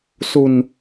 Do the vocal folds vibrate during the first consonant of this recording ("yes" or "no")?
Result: no